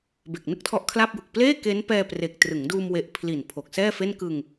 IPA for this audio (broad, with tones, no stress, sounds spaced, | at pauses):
b e˨˩ k̚ n ɯ˥˩ k̚ tʰ ɔ˦˥ ʔ kʰ l a˥˩ p̚ j u˨˩ k̚ p l eː˥˩ k e˦˥ n p ɛː˧ p r e˨˩ k̚ t r ɯ˩˦ ŋ d uː˧ m w e˦˥ ʔ pʰ l i˨˩ n pʰ o˨˩ k̚ s ɛː˥˩ f e˥˩ n k ɯ˧ ŋ